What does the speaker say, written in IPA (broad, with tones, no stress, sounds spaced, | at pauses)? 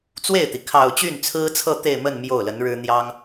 t͡s w e˥˩ ɪ̯ t̪ i˩ kʰ ɑ˨˩ ʊ̯ t͡ɕ y˥˩ n t͡sʰ ɹ̩˥ t͡sʰ ɤ˥˧ t̪ e˥˧ ɪ̯ m ə˥˧ n m j o˥˩ ʊ̯ l ə˧˥ n ɻ ɻ̩˥ n̪ j ɑ˥ ŋ